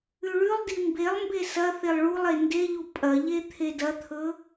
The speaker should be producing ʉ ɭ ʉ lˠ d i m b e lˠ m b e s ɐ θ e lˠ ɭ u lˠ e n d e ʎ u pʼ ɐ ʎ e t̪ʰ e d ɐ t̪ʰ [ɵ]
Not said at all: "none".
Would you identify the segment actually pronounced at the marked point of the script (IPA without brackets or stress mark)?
ɵ